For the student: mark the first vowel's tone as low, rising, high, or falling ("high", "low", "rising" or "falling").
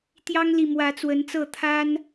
high